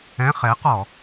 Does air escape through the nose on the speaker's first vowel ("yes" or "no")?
yes